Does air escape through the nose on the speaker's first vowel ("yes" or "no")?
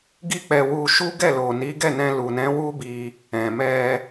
no